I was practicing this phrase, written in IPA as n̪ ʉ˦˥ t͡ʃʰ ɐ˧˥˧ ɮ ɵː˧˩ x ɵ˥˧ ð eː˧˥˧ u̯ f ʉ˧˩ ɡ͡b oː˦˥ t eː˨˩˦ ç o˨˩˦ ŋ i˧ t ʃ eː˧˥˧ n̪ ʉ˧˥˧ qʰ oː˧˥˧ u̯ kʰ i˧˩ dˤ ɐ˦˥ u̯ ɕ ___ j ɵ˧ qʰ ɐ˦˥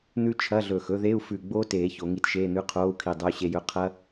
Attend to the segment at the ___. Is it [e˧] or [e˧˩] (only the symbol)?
e˧